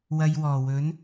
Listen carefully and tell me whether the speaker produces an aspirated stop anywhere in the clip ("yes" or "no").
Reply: no